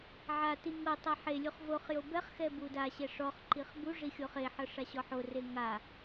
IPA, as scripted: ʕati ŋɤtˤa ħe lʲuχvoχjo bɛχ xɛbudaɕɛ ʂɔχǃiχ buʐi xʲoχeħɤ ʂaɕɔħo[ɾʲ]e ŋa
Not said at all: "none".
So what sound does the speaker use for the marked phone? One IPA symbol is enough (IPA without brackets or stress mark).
r